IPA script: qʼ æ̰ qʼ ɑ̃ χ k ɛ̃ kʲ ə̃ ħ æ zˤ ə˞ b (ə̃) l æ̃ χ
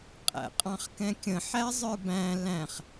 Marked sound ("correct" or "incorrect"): incorrect